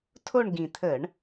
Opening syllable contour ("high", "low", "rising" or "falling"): falling